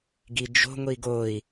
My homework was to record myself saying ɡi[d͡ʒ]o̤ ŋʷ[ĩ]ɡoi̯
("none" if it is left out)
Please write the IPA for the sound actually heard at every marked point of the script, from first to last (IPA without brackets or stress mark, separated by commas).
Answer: d͡ʒ, i